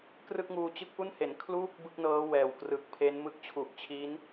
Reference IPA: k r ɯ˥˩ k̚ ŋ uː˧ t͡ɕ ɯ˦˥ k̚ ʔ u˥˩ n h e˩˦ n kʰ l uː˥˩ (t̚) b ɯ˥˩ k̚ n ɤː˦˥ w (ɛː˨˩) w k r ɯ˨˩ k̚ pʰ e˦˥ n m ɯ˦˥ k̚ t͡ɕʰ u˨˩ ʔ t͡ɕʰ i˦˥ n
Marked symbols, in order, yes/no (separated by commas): no, yes